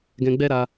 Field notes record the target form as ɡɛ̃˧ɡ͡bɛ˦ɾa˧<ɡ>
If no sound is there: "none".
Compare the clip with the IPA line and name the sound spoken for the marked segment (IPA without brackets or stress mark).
none